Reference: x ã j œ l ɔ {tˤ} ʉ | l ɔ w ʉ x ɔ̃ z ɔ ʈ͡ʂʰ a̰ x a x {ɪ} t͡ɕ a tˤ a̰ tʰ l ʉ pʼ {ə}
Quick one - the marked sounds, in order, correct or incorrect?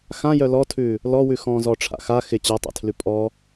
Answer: incorrect, correct, incorrect

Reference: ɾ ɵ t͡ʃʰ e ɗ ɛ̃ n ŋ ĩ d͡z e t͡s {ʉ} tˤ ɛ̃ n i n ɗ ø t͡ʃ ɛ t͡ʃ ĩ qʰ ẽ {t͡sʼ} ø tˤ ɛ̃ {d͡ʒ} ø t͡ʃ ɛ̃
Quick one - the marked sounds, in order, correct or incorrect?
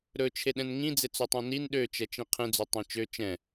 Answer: incorrect, incorrect, incorrect

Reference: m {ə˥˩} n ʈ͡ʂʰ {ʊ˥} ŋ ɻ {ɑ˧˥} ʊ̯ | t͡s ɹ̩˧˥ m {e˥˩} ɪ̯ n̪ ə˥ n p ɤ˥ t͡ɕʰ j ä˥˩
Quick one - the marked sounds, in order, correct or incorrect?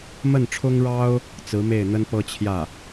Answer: correct, correct, incorrect, correct

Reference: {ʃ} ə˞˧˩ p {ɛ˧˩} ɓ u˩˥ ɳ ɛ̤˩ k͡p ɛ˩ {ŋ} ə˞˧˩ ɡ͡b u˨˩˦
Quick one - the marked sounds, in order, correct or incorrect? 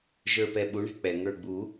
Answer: incorrect, correct, correct

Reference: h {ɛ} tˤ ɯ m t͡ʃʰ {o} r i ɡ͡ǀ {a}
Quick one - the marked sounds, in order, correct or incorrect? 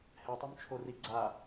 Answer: correct, correct, correct

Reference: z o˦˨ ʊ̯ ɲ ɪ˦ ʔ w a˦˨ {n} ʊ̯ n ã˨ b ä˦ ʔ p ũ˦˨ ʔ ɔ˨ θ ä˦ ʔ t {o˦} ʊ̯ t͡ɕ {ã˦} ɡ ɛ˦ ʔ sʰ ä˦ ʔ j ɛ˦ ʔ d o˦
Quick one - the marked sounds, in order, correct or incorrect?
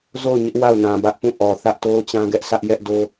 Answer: incorrect, correct, correct

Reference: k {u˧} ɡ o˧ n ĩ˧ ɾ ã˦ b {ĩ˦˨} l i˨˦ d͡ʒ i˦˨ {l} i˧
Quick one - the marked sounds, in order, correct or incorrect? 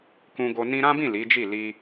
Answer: incorrect, correct, correct

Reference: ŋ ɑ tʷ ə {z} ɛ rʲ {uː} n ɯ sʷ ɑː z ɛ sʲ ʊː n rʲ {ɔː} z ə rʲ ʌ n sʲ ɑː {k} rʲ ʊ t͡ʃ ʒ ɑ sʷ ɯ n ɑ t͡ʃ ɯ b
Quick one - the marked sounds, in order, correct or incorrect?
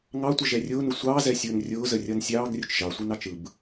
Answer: incorrect, incorrect, incorrect, incorrect

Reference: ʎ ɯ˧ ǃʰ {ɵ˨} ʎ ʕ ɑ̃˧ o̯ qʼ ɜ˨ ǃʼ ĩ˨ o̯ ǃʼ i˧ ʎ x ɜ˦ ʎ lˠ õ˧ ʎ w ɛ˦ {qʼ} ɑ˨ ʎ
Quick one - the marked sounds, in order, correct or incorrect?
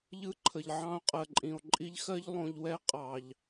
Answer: incorrect, correct

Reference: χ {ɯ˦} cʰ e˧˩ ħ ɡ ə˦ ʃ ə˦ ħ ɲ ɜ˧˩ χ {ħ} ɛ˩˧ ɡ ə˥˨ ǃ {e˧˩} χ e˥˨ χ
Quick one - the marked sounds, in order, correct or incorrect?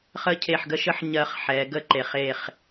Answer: incorrect, correct, correct

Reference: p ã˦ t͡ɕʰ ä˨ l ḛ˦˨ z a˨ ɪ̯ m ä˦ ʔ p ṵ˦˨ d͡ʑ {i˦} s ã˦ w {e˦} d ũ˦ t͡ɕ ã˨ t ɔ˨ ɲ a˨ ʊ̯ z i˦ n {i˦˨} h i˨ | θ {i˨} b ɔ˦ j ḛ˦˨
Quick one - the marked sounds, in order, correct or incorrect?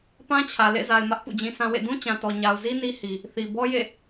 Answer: incorrect, incorrect, incorrect, correct

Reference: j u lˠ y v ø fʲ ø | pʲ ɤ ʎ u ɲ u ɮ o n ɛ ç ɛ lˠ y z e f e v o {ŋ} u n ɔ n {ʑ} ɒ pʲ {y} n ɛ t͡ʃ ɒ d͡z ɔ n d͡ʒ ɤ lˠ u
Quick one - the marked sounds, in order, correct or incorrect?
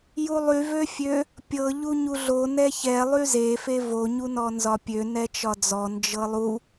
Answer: incorrect, incorrect, incorrect

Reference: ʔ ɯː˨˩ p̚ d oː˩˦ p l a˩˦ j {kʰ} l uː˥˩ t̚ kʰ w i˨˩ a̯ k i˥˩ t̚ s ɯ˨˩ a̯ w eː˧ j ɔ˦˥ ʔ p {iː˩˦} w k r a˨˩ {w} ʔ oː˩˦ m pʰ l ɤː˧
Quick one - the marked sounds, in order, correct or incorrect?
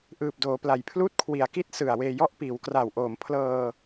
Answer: incorrect, correct, correct

